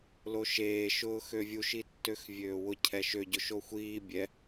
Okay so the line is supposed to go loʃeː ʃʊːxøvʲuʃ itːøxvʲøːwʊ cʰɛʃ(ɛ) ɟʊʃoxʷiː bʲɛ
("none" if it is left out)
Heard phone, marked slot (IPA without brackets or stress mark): ø